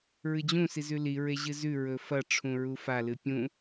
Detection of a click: absent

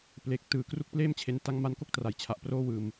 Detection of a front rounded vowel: absent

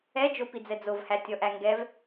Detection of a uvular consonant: absent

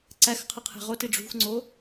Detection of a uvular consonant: present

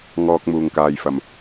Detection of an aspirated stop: absent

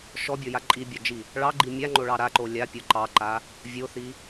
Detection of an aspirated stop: absent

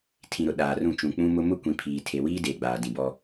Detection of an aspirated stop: present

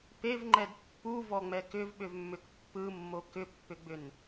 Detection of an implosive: present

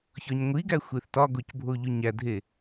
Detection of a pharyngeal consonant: absent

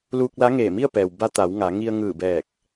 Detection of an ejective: absent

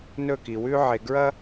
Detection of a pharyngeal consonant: present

